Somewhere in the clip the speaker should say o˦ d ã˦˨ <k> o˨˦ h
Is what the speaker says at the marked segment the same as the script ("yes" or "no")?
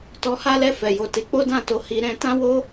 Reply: no